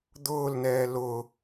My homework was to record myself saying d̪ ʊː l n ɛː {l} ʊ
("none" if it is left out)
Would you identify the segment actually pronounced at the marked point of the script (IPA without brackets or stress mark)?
l